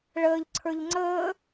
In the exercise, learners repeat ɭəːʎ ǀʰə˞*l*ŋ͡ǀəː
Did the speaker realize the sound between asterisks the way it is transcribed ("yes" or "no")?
no